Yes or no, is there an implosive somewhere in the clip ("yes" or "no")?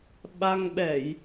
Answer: yes